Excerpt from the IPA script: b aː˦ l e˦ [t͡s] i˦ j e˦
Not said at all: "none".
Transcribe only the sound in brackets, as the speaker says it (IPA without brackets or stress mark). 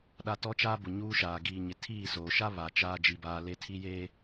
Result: tʰ